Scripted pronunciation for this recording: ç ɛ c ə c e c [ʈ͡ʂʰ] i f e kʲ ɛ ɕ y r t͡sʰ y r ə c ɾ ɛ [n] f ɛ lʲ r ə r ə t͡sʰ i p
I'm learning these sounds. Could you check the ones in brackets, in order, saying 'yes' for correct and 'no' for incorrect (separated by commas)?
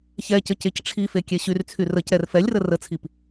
yes, no